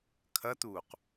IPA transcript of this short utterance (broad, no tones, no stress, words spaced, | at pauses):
kʰɐt̪uːq